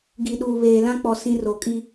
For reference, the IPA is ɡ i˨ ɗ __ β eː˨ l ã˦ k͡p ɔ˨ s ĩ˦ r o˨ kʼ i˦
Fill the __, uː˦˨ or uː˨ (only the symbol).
uː˨